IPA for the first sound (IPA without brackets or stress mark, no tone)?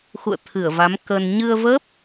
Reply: x